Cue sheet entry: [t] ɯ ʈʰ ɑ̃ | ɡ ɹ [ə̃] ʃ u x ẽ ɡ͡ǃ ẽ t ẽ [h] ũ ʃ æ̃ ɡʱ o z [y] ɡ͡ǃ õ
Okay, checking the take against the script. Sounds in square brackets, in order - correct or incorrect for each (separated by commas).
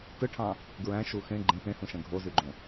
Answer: correct, incorrect, correct, correct